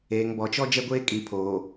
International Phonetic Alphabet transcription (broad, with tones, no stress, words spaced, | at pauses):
eː˨ŋ bɔ˨t͡ʃɔ˦ d͡ʒɛ˦ɡʷeː˦kʼi˨pʰoː˨